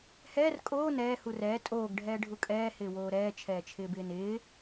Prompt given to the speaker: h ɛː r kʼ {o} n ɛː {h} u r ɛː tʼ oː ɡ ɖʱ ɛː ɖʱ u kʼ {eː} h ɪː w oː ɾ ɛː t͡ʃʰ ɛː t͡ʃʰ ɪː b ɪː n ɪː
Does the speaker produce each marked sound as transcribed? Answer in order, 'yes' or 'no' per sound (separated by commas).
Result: no, yes, no